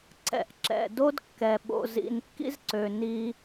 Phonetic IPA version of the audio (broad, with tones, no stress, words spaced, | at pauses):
ǀɛ̰˨ʔǁɛ̰˨do˦dkːɛ˨ ɓo̰˨zḭ˨nkːḭ˦zǀø˨ ni˦